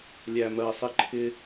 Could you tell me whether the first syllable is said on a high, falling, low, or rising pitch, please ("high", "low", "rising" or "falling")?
low